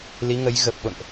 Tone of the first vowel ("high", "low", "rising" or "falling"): rising